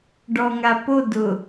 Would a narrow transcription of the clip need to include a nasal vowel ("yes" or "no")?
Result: no